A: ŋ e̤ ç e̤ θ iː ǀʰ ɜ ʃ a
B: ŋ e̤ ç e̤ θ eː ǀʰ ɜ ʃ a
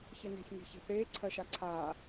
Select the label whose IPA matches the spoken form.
B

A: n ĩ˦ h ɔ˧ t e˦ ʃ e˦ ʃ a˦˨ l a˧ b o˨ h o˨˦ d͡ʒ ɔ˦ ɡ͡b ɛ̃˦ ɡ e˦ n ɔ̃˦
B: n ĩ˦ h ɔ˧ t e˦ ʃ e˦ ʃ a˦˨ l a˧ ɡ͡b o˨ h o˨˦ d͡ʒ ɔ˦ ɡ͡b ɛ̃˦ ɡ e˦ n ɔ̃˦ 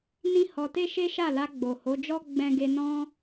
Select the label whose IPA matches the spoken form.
B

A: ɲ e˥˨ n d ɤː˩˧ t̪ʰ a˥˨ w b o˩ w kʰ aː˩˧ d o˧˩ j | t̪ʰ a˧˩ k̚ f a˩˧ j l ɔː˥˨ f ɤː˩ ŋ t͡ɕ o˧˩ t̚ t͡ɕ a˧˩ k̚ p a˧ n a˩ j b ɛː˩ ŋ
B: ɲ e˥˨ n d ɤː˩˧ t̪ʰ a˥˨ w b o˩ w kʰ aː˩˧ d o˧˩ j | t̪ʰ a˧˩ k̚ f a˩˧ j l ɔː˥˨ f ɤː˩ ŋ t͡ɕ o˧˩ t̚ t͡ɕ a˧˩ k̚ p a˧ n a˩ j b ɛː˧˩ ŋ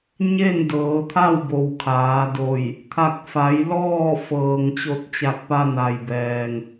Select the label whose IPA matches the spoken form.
A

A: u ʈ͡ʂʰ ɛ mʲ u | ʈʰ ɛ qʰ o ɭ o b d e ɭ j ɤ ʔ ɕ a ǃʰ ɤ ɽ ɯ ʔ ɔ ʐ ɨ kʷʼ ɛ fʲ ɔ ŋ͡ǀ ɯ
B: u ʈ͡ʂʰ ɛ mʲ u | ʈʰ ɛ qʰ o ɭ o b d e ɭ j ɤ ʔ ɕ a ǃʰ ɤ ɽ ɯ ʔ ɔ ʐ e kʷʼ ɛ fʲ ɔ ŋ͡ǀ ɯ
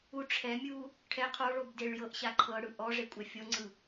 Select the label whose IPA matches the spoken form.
B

